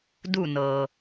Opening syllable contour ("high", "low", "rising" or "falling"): falling